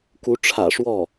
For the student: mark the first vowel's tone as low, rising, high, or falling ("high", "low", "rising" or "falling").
rising